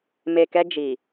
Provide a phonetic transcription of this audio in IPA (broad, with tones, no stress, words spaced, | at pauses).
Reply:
me˨kɛ˧ d͡ʒi˨